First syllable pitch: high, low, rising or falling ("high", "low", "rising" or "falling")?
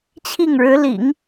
falling